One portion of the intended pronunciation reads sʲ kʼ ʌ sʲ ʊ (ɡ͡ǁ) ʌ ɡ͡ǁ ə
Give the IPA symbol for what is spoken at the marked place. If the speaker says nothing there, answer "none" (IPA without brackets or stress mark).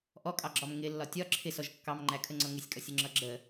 ŋ͡ǁ